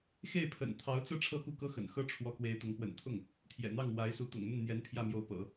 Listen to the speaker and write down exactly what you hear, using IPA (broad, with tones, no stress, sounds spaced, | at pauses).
x e˥˩ ɪ̯ pʰ ə̰˨˩ n t̪ʰ ɑ˧˥ ʊ̯ t͡s ɤ˥ ʈ͡ʂʰ ɤ˥˧ k u˥˩ k ɤ˥ x ə̰˨˩ n x ɤ˥ ʈ͡ʂʰ w ɔ˧˥ k w e˧˥ ɪ̯ t̪ ʊ˧˥ ŋ p w ə̰˨˩ n t̪ʰ ʊ˥˩ ŋ | t̪ʰ j ɛ̰˨˩ n̪ ɑ˥˩ ŋ w a˧˥ ɪ̯ s u˧˥ t̪ ʊ̰˨˩ ŋ n̪ ə˥˩ n n̪ j ɛ˧˥ n pʰ j ä˥˩ m j o˧˥ ʊ̯ p ɤ̰˨˩˦